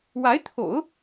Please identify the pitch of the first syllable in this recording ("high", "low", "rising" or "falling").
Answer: rising